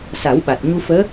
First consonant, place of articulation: alveolar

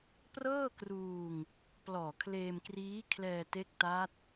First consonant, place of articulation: labial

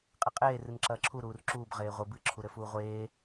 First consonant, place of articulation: uvular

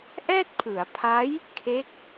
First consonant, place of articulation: glottal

